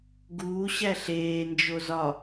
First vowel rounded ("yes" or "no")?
yes